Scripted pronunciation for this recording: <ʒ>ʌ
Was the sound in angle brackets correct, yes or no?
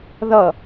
no